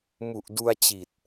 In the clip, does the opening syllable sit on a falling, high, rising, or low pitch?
low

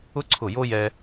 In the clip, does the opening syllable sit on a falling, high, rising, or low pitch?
high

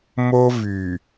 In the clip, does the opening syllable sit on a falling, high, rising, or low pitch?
high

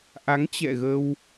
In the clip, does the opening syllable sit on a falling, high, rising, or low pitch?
rising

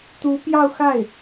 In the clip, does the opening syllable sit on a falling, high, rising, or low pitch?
rising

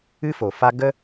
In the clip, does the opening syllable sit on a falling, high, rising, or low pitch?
high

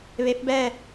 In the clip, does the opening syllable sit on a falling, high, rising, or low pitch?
rising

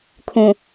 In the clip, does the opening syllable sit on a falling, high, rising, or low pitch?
low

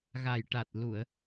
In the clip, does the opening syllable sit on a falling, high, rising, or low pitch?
low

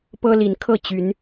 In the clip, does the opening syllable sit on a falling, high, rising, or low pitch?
high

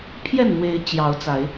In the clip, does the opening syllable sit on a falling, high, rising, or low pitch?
falling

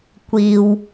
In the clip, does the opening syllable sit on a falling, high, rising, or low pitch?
low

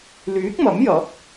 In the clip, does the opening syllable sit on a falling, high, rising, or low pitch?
rising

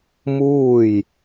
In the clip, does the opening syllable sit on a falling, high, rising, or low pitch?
falling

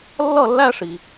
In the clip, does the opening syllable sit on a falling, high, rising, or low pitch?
falling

